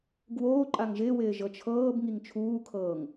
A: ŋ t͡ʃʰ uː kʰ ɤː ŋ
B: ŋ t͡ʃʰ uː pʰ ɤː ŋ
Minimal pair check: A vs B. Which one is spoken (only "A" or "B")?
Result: A